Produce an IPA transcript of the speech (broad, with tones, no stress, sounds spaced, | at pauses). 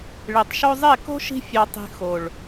ɭ e˨ tˤ ʃ o˧ zˤ e˦˨ k o̤˦ ʃ i̤˧ fʲ ɑ˨ tˤ i̤˨ x o˨ ɭ